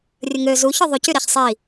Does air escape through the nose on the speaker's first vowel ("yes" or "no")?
no